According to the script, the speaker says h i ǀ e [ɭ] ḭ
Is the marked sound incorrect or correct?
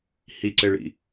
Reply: correct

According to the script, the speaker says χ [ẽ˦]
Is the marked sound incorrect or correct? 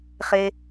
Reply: incorrect: e˦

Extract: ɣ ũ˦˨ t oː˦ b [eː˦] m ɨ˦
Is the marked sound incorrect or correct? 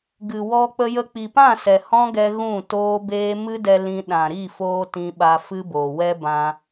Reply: correct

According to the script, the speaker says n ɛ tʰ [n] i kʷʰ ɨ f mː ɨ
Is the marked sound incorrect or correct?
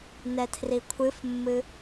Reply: incorrect: r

